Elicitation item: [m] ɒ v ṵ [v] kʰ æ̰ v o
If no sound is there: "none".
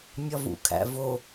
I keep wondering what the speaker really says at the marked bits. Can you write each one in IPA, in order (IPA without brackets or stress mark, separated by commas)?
mʲ, none